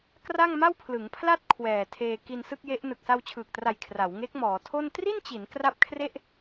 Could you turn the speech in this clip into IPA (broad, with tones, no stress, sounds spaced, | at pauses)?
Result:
k r a˥˩ ŋ m a˥˩ w pʰ l ɯ˩˦ ŋ pʰ l a˥˩ t̚ kʰ w ɛː˨˩ tʰ eː˧ k i˧ n s ɯ˥˩ k̚ j e˦˥ ʔ n ɯ˨˩ k̚ s a˧ w t͡ɕʰ ɯː˨˩ k̚ t r a˨˩ j kʰ r a˩˦ w ŋ e˦˥ k̚ m ɔː˩˦ tʰ o˥˩ n t r i˥˩ n t͡ɕ i˩˦ n k r a˥˩ p̚ kʰ r e˥˩ ʔ